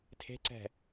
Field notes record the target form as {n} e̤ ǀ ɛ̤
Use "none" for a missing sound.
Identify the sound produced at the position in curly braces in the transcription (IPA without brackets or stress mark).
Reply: tʰ